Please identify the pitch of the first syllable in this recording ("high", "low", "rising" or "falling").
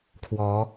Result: rising